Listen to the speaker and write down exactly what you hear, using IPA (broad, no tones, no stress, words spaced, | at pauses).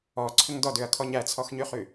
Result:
ɔ ǀʰʏŋdɔd ʏɐ̯kʰɔɲ æt͡sʰɔxɲyχy